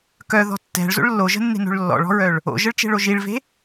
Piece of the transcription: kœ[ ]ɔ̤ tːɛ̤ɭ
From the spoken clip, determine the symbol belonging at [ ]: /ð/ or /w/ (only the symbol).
ð